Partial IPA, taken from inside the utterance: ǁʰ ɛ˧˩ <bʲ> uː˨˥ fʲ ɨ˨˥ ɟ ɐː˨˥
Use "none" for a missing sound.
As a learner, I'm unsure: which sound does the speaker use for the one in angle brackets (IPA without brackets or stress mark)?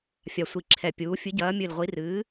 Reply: pʲ